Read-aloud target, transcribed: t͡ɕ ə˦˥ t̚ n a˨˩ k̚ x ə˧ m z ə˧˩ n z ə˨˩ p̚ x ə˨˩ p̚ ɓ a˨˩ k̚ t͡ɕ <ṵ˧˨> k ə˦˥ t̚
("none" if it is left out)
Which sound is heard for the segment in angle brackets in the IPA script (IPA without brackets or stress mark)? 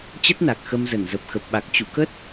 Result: ṵ˧˨